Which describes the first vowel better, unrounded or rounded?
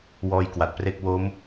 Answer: rounded